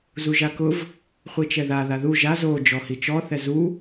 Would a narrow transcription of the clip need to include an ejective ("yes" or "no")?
no